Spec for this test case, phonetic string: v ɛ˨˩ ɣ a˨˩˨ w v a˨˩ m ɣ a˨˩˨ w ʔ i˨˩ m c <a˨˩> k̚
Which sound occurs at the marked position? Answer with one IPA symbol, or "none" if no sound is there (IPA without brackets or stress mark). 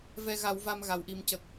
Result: ə˨˩